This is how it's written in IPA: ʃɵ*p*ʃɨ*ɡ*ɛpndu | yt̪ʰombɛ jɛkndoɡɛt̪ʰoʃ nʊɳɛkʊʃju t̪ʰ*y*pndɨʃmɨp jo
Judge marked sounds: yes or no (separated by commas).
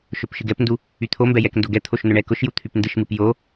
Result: yes, yes, yes